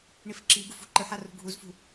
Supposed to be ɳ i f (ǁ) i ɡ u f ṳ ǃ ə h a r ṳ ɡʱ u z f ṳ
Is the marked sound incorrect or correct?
correct